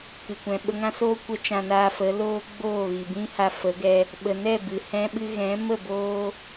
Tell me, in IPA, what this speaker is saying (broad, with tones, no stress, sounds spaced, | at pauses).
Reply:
k ɨ˨ kʷ ɛ̃˨ ɓ ə˧ ŋ ã˦ s oː˦ kʷ ə˦ t͡ʃ ã˧ n aː˧ f ə˨˦ l oː˦ ɡ͡b oː˦˨ ɣ i˨ b ĩ˦ h a˧ f ə˨˦ ɡ ɛ˧ | ɓ ə˨ n ɛ˦˨ b ɨ˨ h ɛ̃˦ ɓ ɨ˦ ɣ ɛ̃˨˦ m ə˦˨ b oː˦